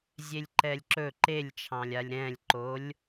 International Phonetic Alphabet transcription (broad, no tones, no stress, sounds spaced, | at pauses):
zʲ e lʲ ǃ ɛ lʲ ǁ ɵ ǃ e lʲ t͡ʃʰ ɑ̃ lʲ a lʲ ɾ ɛ̃ lʲ ǃ o lʲ